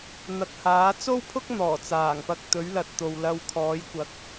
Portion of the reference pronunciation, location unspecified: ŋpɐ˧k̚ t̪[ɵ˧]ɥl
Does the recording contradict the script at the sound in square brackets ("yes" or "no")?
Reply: yes